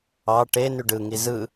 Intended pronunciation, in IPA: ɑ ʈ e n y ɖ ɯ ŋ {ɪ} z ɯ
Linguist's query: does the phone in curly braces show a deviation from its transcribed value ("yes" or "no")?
yes